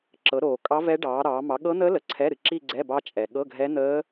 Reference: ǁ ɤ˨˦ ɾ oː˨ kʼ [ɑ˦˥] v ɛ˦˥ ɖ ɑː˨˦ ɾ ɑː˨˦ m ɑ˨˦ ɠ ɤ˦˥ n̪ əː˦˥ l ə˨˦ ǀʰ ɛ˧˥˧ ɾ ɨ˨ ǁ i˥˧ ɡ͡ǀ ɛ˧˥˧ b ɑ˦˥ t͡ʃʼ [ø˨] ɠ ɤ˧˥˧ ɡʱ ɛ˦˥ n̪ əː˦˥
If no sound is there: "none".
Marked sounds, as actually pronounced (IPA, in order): ɑ˦˥, ɛ˨

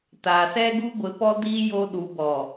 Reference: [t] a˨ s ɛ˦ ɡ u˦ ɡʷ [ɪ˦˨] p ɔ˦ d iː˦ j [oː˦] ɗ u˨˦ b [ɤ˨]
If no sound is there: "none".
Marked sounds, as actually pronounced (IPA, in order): t, ɪ˨˦, o˦, ɔ˨

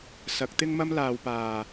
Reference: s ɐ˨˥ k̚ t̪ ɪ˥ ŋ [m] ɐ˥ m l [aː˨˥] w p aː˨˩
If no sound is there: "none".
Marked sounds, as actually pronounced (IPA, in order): m, aː˨

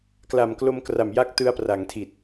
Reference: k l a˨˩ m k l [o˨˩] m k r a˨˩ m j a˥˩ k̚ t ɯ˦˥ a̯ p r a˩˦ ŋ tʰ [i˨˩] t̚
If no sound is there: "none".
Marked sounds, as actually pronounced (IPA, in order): o˧, i˨˩

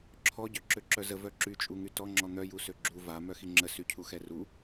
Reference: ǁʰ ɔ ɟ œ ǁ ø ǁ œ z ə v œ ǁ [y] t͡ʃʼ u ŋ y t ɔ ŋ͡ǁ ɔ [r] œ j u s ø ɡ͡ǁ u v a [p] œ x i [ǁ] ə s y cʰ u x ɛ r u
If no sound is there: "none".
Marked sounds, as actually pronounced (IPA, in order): y, n̪, m, ŋ͡ǁ

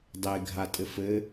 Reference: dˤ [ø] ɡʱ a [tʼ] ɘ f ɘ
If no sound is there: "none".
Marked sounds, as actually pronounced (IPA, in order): e, tʼ

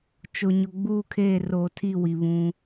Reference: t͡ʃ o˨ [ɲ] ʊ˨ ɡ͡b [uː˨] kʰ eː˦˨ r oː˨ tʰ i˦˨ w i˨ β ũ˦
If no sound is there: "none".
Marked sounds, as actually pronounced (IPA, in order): ɲ, uː˦˨

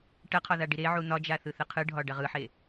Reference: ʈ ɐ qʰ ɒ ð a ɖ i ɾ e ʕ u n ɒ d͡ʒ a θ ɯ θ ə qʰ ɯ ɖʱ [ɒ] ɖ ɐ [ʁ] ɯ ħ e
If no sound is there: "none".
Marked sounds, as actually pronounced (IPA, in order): ɒ, ʁ

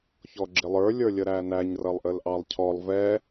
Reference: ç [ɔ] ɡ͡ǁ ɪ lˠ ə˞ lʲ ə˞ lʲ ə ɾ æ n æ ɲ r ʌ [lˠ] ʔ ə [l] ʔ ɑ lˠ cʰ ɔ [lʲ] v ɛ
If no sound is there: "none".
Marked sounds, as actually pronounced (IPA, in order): ɔ, lˠ, l, lˠ

